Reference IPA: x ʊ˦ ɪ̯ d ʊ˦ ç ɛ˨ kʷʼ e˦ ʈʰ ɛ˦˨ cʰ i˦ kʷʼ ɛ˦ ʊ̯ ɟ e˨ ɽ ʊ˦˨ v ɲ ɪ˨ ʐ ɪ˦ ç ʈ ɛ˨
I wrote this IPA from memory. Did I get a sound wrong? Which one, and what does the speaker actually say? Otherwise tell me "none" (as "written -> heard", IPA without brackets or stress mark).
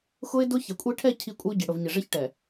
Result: none